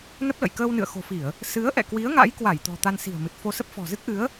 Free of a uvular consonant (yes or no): yes